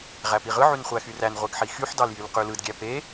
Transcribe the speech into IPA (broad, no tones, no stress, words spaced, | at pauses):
ʁæpiʁɯ ʕynχʷæxyræn ʁʷeɡħixyħ dɑljylqylɯd ɡʲæpe